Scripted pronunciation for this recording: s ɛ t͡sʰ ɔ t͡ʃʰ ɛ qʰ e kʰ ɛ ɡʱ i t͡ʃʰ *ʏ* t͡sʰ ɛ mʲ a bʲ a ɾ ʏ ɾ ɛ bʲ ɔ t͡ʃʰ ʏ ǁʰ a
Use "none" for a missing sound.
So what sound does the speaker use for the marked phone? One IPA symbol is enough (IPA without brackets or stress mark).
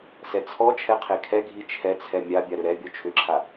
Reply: ɛ